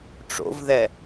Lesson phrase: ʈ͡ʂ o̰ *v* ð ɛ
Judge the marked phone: correct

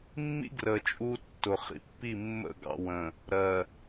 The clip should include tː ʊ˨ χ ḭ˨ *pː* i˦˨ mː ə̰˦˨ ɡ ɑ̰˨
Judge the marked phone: correct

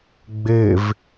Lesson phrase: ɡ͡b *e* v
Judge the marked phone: correct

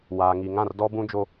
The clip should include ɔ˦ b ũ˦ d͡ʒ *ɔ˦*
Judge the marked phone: incorrect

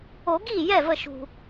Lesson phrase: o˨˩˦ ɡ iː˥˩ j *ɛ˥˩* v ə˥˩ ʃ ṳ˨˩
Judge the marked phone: correct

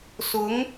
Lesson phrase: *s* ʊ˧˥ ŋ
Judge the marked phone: correct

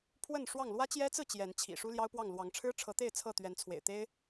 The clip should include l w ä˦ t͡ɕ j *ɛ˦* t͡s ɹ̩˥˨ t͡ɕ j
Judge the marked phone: correct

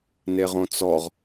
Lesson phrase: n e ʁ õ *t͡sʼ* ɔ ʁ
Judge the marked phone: incorrect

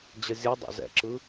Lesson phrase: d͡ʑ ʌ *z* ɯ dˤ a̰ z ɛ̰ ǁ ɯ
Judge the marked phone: incorrect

